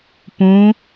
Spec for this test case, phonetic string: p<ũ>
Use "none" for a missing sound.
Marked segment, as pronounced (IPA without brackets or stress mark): ũ